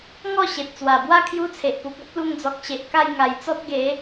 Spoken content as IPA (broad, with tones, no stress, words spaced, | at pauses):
ŋɔ˥˧ɕe˨t̚t͡swa˨˩bwa˦ kʰju˦t͡sʰe˨ʔpu˨k̚ ɔ˦p̚lu˧ŋd͡zɔ˨k̚ ɕe˨ʔka˥˧j ŋa˨˩jt͡sɔ˦t̚ɡe˨˦